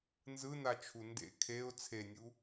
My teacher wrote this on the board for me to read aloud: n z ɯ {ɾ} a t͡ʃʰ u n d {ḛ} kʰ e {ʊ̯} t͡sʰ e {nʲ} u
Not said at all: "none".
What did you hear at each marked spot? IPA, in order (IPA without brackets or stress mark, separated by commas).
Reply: n, ḛ, ʊ̯, nʲ